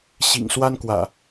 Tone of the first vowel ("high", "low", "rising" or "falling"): low